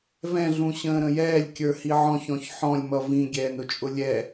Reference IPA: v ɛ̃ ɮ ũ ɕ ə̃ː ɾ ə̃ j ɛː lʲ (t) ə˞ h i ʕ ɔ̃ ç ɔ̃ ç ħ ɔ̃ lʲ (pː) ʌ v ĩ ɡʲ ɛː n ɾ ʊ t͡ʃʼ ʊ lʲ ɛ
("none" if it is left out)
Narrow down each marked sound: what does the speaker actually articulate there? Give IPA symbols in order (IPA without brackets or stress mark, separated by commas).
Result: kʲ, m